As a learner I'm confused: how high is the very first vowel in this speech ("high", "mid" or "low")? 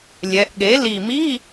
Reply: mid